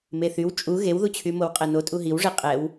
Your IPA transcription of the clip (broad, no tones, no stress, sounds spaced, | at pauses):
m e θ y w t͡ʃʼ u ɣ e w ð u t͡ɕʰ y m o w qʼ ɛ n o tʼ u ɦ i w ʐ e qʼ ɛ w